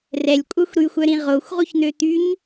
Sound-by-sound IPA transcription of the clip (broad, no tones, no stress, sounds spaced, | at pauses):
r ɛ lʲ kʷʼ œ xʷ ɾ y xʷ œ ɾ ĩ ʁ o xʷ ʁ u ç n̪ ø t̪ y ɲ